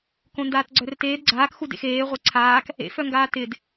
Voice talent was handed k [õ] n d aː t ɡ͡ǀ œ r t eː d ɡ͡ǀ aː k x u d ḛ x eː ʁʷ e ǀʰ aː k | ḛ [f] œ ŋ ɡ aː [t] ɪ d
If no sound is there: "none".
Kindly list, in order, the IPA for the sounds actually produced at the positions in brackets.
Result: õ, f, t

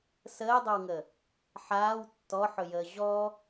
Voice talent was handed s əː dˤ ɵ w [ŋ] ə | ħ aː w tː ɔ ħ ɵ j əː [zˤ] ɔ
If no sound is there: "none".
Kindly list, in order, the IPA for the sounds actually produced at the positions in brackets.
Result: ŋ, ʑ

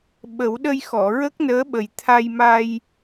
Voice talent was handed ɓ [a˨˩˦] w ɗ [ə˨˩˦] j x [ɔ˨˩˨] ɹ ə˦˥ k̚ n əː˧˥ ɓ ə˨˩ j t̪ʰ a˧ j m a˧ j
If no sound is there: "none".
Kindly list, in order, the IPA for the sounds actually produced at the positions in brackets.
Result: ə˨˩˦, ə˧, ɔ˨˩˨

